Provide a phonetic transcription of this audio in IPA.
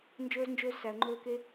n d͡ʒ ɵː˦ z n d͡ʒ ɵː˦ z s æ˧ ə̯ ŋ͡ǃ ɵː˦ k e˦

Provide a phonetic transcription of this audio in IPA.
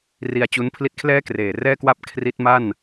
r i˧ a̯ t͡ɕ u˦˥ n pʰ l i˥˩ t̚ kʰ l ɛː˥˩ k r eː˨˩ r ɛː˥˩ k w a˥˩ p̚ kʰ r i˦˥ t̚ m a˥˩ n

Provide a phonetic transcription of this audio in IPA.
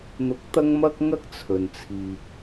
n̪ ʊ˧ k̚ t̪ ɐ˥ ŋ m ɐ˥ k̚ ŋ ɐ˥ k̚ t͡sʰ ɵ˨ n t͡sʰ iː˨ k̚

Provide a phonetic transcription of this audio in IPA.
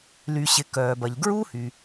l y˩ ɕ ɪ˩ k œː˩ b ɐ˩ ʎ ɡ ɹ u˥ h y˩

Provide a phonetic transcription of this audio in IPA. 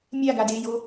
mʲ a ɡ a d e j o

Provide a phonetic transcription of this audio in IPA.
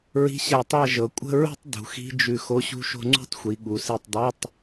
ɹ i̤˧˥˧ ɕ æ˧˩ tˤ æ˥˧ ʒ ɤ˩˧ kʷʼ ə̤˧˥˧ ɹ ṳ˥˧ tˤ d ṳ˩˧ x i̤˧˥˧ d͡ʒ ʉ˧˩ x o˧˥˧ ɕ ṳ˥˧ ʃ o̤˥˧ ŋ͡ǀ ṳ˥˧ tˤ xʷ i˩˧ ɠ u˩˧ s i˧˩ tˤ dˤ æ˧˥˧ tˤ

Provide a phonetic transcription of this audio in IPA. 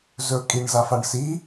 z ɵ kʼ i ɳ z a f a ɳ s i

